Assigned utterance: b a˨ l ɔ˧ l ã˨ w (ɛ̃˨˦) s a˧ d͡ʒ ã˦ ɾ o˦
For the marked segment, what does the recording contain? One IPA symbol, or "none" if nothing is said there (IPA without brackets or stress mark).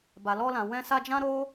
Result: ɛ̃˧